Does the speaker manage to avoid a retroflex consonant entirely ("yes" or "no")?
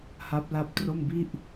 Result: yes